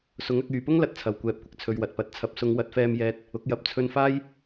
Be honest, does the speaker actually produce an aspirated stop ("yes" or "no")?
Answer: yes